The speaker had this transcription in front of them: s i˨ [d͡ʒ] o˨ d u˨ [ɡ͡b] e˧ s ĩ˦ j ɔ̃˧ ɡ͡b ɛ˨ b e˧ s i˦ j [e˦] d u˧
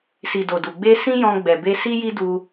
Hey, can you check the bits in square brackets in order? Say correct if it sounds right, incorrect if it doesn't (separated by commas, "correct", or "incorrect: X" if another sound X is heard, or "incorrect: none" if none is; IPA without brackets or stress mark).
incorrect: d, correct, incorrect: i˦